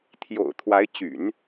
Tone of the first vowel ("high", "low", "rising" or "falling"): low